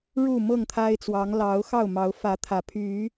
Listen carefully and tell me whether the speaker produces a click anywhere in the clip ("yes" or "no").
no